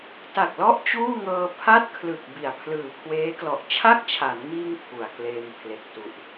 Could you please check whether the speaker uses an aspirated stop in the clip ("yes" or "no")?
yes